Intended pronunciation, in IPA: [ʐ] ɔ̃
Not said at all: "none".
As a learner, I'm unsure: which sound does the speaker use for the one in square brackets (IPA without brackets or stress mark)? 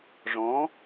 ʐ